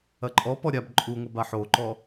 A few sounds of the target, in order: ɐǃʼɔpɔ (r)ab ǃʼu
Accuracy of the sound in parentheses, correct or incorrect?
incorrect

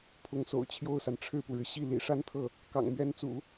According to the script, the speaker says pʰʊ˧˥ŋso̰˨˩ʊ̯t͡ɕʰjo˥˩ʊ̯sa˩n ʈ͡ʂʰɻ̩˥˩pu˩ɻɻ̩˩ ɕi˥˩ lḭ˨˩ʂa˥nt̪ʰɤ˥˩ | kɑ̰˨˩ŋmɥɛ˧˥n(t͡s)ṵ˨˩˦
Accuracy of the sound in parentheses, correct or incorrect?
correct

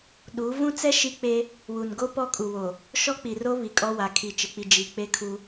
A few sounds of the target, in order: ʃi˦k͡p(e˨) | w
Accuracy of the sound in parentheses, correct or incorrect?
incorrect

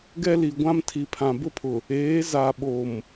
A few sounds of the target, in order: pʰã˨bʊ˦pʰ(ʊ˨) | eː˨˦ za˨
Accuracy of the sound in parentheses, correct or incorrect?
correct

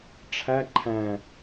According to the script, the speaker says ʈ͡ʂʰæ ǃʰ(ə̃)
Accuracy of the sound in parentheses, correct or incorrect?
incorrect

